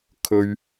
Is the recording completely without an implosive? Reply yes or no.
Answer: yes